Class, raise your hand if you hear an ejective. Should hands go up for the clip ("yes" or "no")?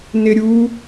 no